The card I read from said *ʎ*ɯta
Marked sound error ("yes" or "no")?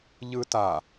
no